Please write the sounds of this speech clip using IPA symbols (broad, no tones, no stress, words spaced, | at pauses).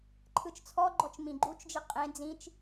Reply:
ǃʰɯt͡ʃt͡sʰɔɡ͡ǃɔt͡ʃ mĩɡ͡ǃut͡ʃd͡ʒi qʼẽ d͡zĩt͡ʃ